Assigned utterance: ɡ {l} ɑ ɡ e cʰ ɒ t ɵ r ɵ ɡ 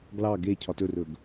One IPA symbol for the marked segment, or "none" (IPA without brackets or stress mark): l